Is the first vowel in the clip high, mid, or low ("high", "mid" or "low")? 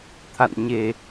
low